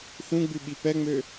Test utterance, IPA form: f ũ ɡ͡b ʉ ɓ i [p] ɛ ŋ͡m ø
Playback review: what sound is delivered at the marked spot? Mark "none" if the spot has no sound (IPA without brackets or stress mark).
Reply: p